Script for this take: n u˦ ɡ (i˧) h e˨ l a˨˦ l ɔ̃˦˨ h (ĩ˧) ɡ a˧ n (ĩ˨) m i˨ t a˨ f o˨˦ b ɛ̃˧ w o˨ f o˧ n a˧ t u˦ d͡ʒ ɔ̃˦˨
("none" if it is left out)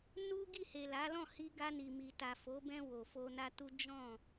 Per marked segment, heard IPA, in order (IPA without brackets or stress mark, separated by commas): i˦˨, i˧, i˨